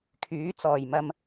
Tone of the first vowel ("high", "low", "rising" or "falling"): rising